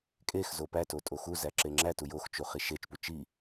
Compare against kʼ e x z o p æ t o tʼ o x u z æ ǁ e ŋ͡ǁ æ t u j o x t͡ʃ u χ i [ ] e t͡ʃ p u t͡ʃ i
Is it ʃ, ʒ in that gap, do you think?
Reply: ʃ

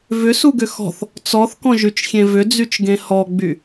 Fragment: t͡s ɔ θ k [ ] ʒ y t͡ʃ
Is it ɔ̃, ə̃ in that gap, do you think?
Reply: ɔ̃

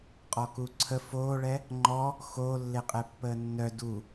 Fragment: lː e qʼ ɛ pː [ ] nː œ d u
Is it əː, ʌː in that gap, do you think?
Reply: əː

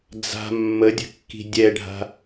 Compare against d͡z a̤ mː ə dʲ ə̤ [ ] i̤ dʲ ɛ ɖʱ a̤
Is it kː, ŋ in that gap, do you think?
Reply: kː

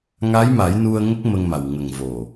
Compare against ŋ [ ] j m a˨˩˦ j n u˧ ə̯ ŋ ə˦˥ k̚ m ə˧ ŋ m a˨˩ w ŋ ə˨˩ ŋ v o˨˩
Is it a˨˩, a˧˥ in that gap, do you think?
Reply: a˧˥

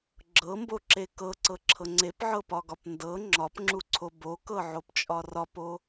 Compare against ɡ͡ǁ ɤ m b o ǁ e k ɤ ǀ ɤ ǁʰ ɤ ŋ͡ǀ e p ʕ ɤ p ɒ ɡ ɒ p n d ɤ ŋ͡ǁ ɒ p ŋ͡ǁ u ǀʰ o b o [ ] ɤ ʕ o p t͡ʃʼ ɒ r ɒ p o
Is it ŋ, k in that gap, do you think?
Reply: k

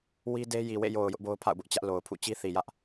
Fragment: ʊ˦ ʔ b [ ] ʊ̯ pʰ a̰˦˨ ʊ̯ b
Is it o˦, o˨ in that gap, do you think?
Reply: o˦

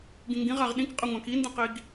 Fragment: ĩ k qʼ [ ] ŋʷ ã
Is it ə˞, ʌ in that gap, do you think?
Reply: ʌ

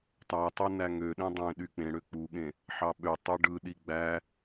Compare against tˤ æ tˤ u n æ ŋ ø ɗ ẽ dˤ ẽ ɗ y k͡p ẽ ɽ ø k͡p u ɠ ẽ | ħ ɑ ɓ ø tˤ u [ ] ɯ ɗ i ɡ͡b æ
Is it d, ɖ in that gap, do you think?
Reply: ɖ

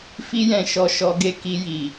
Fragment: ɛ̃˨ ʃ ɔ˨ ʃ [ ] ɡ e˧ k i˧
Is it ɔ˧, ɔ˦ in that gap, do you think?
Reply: ɔ˧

